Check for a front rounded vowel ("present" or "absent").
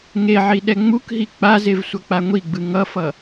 absent